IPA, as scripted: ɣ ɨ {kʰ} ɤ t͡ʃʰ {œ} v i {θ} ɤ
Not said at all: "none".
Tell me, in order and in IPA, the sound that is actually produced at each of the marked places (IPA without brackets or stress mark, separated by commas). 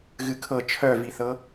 kʰ, œ, θ